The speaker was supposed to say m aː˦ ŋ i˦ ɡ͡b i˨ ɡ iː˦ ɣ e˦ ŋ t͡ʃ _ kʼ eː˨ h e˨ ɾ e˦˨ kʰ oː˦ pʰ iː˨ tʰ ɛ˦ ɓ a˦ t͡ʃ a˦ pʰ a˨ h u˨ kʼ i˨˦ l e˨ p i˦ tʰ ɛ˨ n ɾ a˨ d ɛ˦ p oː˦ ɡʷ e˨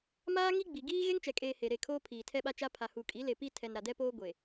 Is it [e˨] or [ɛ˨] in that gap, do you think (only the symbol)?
ɛ˨